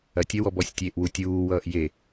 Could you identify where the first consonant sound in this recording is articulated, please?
alveolar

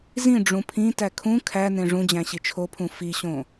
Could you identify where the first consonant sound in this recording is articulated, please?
alveolar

